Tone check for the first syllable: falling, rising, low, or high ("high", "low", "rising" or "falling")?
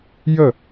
falling